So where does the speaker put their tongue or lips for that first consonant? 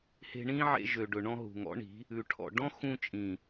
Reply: throat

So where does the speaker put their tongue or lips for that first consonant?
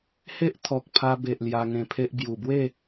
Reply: throat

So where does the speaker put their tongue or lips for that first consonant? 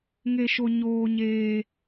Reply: velum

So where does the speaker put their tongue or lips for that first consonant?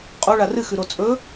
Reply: uvula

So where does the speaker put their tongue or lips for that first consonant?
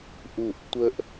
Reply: throat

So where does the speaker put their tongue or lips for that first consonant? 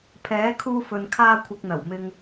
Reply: lips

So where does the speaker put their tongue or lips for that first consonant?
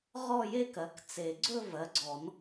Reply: uvula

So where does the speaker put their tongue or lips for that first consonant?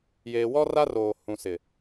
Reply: palate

